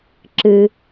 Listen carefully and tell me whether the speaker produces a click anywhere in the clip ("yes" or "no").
yes